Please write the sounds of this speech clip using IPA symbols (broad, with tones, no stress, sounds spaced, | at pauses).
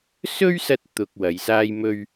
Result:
s ɵ˥ ɥ s ɐ˧ t̚ t̪ ʊ˨ k̚ w ɐ˨˧ j s aː˥ j m ɵ˥ ɥ